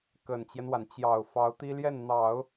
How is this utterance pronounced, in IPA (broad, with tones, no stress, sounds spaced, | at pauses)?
k ə˨˩ n t͡ɕ j ɛ˦ n w a˩ n t͡ɕ j ɑ˨˩ ʊ̯ f ɑ˧˥ ʊ̯ t̪ i˥ l j ɛ˥˩ n n̪ ɑ˨˩˦ ʊ̯